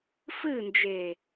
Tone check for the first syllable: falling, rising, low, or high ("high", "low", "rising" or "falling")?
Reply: falling